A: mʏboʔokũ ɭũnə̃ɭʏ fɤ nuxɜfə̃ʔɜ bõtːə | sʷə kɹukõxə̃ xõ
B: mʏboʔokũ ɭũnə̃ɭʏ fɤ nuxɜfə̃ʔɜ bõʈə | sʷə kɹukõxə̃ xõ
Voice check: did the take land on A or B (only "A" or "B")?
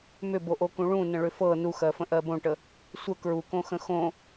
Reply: B